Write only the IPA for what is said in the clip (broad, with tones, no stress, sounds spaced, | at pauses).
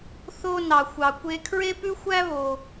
θ o˧ n ɑ˩ xʷ ɑ˩ kʷ e˧ kʰ ɹ e˥ p ʉ˥ xʷ æ˥ β o˩